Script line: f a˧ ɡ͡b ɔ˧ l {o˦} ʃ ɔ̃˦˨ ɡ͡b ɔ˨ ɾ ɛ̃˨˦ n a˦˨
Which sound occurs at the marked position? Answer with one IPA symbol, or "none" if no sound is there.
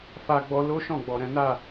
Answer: o˦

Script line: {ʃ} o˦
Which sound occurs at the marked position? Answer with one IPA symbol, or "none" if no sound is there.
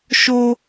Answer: ʃ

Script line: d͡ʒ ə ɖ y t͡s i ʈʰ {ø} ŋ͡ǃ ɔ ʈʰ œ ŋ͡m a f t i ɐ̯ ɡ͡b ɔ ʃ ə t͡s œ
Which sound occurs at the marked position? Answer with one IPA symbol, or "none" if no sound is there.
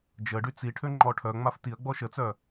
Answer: ø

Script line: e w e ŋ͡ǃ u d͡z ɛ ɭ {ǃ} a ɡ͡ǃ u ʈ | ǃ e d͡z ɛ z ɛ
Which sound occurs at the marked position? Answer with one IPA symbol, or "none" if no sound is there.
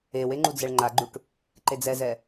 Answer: ŋ͡ǃ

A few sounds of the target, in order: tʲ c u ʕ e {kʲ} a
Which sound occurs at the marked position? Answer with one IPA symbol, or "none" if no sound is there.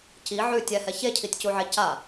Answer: c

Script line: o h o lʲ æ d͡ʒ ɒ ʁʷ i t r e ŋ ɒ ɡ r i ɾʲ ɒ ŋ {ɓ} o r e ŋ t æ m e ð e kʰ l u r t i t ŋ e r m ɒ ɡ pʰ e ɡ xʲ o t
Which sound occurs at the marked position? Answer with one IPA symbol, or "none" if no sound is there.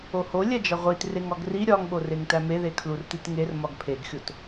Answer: ɓ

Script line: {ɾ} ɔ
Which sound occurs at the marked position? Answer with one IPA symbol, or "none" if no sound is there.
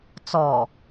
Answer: t͡s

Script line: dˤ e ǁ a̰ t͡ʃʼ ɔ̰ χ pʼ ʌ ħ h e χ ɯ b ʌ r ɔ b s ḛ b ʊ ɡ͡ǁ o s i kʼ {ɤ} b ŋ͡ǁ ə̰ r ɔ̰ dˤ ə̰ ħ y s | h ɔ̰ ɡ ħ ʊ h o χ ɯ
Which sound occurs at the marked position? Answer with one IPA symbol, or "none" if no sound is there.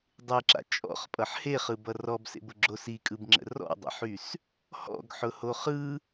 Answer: ɯ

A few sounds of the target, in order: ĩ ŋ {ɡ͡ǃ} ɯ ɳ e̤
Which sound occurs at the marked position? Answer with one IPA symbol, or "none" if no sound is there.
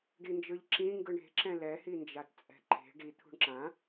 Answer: ɡ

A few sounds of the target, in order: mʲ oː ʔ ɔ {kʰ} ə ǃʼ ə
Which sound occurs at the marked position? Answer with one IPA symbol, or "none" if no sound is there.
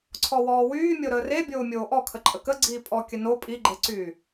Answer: kʰ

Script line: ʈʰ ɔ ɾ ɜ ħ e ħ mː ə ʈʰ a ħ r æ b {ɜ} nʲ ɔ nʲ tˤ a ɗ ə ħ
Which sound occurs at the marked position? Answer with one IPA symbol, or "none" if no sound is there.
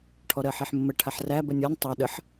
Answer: ɜ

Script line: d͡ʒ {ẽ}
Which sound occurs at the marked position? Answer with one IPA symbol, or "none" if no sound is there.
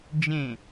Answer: ẽ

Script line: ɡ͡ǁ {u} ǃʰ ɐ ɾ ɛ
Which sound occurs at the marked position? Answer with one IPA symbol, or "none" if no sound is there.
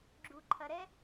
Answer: u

